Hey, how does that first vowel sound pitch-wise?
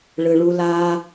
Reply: low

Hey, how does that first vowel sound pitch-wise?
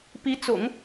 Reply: rising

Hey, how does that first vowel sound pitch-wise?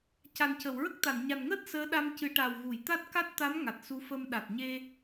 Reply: low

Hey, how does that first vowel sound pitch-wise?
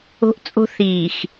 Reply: high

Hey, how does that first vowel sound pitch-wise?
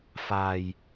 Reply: low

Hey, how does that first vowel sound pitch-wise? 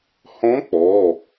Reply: rising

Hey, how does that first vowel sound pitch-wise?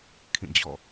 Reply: falling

